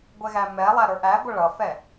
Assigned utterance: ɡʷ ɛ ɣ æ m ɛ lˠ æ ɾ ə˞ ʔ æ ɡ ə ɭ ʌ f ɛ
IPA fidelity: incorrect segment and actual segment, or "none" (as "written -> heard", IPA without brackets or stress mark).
ɡ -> ɡʷ